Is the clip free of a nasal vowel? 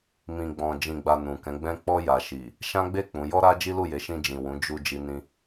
no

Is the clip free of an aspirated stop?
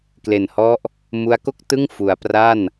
yes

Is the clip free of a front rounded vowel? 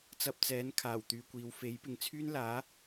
no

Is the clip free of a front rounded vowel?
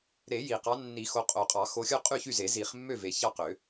no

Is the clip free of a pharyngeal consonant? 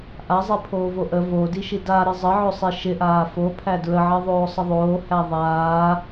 no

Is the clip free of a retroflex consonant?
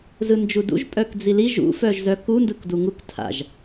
yes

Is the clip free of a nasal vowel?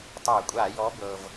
yes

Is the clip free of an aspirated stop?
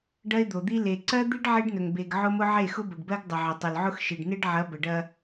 yes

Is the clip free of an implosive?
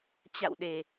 no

